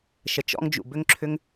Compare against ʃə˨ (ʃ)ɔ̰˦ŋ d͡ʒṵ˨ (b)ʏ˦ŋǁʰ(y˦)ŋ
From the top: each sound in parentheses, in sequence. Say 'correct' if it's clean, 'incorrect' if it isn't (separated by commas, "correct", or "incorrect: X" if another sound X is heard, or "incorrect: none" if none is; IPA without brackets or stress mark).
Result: incorrect: t͡ʃ, correct, incorrect: ʏ˦